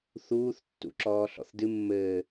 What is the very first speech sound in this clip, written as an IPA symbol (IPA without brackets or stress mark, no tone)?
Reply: θ